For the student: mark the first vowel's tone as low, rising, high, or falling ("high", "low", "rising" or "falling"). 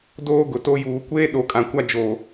high